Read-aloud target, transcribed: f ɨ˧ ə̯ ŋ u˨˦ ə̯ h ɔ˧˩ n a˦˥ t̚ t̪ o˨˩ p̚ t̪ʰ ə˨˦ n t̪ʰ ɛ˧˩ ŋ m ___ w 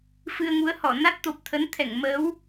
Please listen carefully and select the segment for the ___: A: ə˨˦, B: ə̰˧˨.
A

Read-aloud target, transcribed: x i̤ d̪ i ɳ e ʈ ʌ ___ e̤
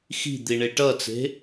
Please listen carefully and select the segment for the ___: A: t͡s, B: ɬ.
A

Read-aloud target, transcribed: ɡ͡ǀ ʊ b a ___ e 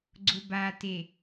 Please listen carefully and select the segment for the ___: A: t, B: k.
A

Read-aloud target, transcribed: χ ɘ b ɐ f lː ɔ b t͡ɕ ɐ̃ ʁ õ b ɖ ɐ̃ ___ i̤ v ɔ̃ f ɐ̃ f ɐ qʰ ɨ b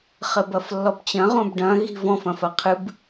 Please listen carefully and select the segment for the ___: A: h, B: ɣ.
B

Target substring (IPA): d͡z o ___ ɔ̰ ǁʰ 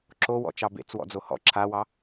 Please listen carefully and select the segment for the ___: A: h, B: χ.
A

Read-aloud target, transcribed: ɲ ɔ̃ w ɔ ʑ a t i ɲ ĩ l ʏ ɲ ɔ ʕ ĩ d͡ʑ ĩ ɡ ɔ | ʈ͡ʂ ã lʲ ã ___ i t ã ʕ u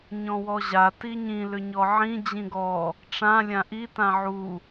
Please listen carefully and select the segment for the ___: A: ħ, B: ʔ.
B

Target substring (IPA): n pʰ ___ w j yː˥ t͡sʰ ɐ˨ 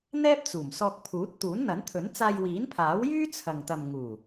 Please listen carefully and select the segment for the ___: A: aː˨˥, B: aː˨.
A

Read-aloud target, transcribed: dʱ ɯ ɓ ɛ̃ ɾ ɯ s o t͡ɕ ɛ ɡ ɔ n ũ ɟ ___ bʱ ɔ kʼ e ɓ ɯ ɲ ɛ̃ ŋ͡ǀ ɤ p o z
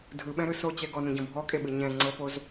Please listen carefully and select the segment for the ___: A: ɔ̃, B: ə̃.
A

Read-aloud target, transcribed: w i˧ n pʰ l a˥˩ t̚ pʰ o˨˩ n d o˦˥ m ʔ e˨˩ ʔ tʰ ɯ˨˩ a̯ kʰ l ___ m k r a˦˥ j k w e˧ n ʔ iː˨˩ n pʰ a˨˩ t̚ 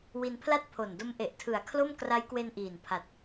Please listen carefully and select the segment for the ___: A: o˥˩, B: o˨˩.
A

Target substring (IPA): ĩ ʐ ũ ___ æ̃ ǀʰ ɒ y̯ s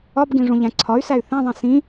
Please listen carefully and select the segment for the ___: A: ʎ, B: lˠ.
A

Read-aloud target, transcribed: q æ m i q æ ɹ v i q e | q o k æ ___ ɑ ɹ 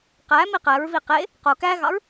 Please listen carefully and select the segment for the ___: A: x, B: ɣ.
B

